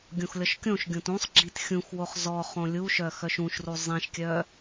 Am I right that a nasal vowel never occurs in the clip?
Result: no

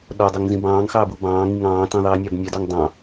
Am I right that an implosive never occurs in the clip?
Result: no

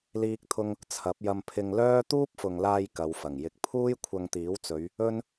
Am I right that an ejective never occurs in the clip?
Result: yes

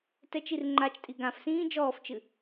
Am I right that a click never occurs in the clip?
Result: no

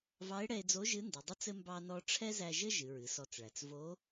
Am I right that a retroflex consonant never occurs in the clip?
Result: no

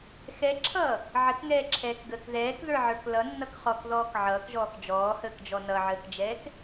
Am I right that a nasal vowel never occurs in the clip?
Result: yes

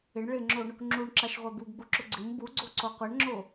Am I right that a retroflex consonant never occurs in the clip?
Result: no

